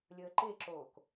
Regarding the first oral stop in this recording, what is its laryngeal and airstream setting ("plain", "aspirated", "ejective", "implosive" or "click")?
click